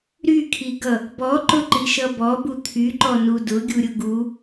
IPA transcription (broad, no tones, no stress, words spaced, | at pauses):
ɾykʰiɡʌ | bɔǃʊǃiʃʌ bɔbu t̪ʰyǃɔnu dʊɡʲuɾʲʊ ɡu